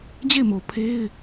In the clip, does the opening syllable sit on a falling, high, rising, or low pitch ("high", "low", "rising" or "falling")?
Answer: falling